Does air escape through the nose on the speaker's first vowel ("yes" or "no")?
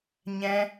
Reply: yes